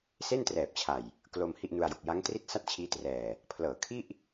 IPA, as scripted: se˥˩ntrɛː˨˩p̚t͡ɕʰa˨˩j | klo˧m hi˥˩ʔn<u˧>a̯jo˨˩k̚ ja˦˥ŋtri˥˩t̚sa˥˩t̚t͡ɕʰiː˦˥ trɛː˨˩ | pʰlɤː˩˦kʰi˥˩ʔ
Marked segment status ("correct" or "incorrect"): correct